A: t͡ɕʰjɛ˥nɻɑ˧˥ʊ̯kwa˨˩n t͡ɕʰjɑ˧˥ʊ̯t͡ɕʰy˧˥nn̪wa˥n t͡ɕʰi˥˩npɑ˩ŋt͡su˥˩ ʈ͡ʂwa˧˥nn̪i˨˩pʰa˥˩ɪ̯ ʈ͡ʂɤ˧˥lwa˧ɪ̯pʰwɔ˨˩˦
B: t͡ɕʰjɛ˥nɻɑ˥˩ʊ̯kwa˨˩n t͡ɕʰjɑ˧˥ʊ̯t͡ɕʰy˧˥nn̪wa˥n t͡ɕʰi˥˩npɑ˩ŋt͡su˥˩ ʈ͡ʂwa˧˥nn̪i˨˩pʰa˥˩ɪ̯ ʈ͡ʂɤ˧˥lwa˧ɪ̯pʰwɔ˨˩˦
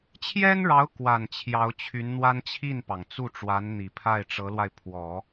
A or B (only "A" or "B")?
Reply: A